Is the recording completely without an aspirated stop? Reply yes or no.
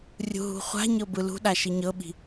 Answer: yes